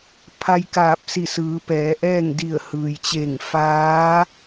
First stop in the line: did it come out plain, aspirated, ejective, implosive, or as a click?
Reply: aspirated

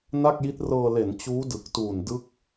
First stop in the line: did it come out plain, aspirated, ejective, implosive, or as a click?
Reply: plain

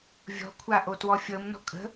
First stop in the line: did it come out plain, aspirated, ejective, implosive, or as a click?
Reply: aspirated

